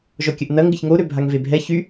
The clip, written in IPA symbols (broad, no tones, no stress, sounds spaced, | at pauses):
ʒ ɔ kʲ ə ʔ n ɐ ŋ ɡ ɪ ç ŋ o ɾ ø bʱ a ŋ v e bʱ ɛ ç y